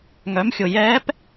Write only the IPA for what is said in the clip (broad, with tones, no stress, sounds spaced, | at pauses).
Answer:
ŋ œ˩˧ m xʲ ʊ˩ j ɛː˧˥ p